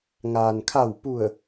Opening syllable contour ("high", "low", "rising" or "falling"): low